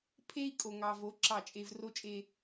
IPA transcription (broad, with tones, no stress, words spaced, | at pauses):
pʰe˦i̯ kʼo˨ŋɑ˨vo˨˦ ǁɑ˦˨t͡ʃʼe˦v ro˦t͡ʃʼe˦